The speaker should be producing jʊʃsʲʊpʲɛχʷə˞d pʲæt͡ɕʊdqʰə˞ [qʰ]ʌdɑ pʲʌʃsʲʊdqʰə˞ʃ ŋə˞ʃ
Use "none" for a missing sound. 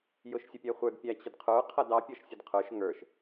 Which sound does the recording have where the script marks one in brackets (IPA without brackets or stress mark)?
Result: qʰ